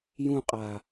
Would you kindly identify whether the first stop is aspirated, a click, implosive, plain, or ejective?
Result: ejective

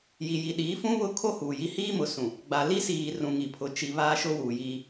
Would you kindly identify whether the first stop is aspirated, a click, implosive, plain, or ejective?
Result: implosive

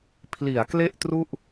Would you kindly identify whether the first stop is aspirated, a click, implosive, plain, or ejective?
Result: aspirated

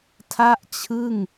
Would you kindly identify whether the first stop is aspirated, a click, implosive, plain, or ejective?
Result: aspirated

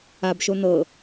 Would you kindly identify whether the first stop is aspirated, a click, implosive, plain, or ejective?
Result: plain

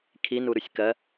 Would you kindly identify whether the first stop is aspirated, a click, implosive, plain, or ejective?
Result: aspirated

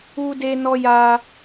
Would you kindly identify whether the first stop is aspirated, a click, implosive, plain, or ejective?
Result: plain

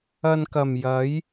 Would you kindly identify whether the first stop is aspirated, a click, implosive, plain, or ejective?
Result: plain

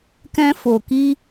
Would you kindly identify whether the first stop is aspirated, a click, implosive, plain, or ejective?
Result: plain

